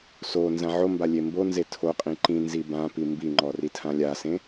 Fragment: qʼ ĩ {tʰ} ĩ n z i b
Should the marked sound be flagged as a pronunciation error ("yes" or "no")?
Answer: yes